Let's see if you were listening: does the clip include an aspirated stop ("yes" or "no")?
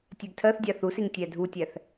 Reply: yes